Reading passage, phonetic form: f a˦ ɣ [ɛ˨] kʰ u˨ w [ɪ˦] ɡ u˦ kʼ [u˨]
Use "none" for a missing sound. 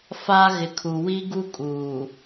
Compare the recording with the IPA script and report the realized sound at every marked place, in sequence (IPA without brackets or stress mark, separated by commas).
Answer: ɪ˨, i˦, uː˨